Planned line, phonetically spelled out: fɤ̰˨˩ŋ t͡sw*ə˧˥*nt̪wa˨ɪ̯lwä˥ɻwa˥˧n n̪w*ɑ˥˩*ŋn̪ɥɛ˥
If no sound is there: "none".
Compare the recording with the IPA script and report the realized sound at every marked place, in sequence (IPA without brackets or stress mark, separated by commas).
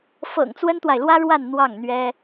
ə˥, ɑ˥˩